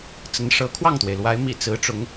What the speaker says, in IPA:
t͡s ə˧˥ n ʂ ɤ˧˥ kʰ w ɑ˥˩ ŋ t̪ w e˩ ɪ̯ l w a˧˥ ɪ̯ m ḭ˨˩ t͡s ɹ̩˧˥ ʈ͡ʂ ʊ˧˥ ŋ

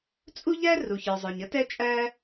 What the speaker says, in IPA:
t͡sʼ u˥ ʎ æ˥ r u˩ ç ə˞˩ zˤ ə˞˩ ɲ ə˥ t ɛ˥ t͡ʃʼ æ˥

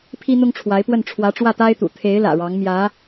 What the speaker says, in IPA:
pʰ i˥ n̪ ʊ˥ ŋ ʈ͡ʂʰ w a˧˥ ɪ̯ p w ə˥˩ n ʈ͡ʂʰ w ä˧˥ ʈ͡ʂ w ä˥˩ t̪ a˥ ɪ̯ t̪ ṵ˨˩ t̪ʰ e˧˥ ɪ̯ l ä̰˨˩ ɻ ɑ˧˥ ŋ m j ä˧˥

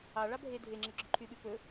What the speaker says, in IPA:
ɑ ɭ ɑ bʱ e dʱ e ŋ͡ǁ ɛ ɡ͡ǁ ɵ ǃʰ y ɓ y p ɵ

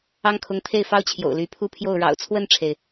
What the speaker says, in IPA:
ɑ˥ ŋ kʰ ʊ˧˥ ŋ t̪ʰ e˥˩ ɪ̯ f ɑ˥ ʊ̯ t͡ɕʰ j o̰˨˩ ʊ̯ l y˧˥ pʰ u˥˧ pʰ j o˥˩ ʊ̯ ɻ ɑ̰˨˩ ʊ̯ t͡sʰ w ə˥˩ n ʈ͡ʂʰ e˩ ɪ̯

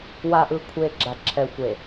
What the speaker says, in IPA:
w a˨ ʔ ɯ˨ kʷʰ e˨ ɡ͡ǁ a˨ ǁʰ ɛ˨ xʷ e˨

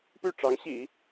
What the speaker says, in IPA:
p y˥˩ ʈ͡ʂ ɑ˧˥ ŋ ɕ ḭ˨˩˦

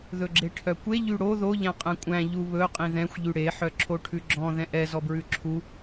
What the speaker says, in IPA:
ð ɵ ɡ͡ǁ e ʈʰ œ kʷ e ʎ y ɽ o ð o ʎ æ̃ qʼ ɛ̃ kʷʼ æ̃ ʎ u β ɵ qʼ ĩ ð ɛ̃ xʷ ʎ y ɽ e ħ œ ǁʰ o ʈʰ ʉ ɡ͡ǁ ɔ̃ ð ɛ̃ ʔ ɛ z ɔ b ɹ ʉ ǁʰ u

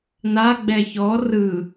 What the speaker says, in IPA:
n a ɡ͡b ɛ ç ɔ r ɯ

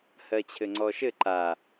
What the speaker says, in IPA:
h ɜ t͡ɕʰ ɘ ŋ͡ǀ ɔ ʃ ɘ ǃ a

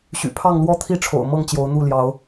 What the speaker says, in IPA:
ɕ y̰˨˩ pʰ ɑ˥˨ ŋ l w ɔ˦ t̪ʰ i˥˨ ʈ͡ʂʰ o̰˨˩ ʊ̯ m ɤ˥˨ ŋ t͡ɕ j o˨˦ ʊ̯ n̪ u˥˨ l j ɑ˨˦ ʊ̯

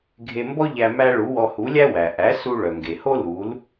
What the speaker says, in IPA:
ɡʱ e˧ m b ɔ˥ ʎ æ˧ m æ˧ ɭ u˩˥ w ɔ˧ h u˩˥ lʲ æ˥ w æ˩ ʔ æ˩˥ s u˧ ɭ œ˩ ŋ ɡ e˩ h o˥ l u˩˥ l

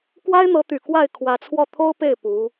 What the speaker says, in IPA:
k w a˥ ɪ̯ n̪ ɤ˧˥ t̪ y˨˩ k w a˥˩ ɪ̯ kʰ w ä˧˥ t͡sʰ w ɔ˥˩ t̪ʰ o˥ ʊ̯ p e˥˩ ɪ̯ p u˧˥

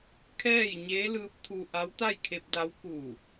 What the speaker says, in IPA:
kʰ ɛː˥˨ j ɲ eː˧˥ l ɯː˧˥ p̚ t̪ʰ u˧ ʔ a˧˥ w t̪ a˥˨ j kʰ e˧ p̚ d a˧˥ w k u˧˩

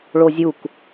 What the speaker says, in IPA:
ɭ o zʲ u k

